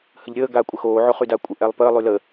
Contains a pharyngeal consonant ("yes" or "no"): yes